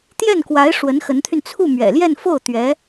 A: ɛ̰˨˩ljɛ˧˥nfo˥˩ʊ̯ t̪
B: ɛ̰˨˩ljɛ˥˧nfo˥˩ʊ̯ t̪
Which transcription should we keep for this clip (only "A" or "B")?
B